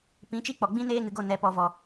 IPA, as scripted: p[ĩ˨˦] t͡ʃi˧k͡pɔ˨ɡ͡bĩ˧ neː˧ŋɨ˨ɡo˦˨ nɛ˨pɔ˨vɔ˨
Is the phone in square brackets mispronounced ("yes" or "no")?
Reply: no